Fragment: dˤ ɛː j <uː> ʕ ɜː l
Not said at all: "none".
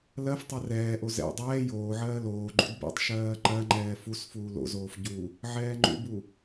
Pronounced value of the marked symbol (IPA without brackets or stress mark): oː